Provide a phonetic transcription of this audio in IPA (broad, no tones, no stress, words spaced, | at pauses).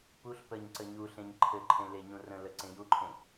puɬ pəɲǀə ɲu ɬẽɲǃʰɘǃʰẽ leɲũrə̃lə ǀẽjuǃʰẽ